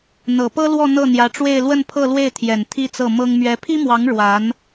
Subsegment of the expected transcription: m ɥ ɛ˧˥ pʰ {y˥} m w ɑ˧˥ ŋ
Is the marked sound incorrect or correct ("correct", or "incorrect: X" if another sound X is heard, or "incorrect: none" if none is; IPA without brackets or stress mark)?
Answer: incorrect: i˥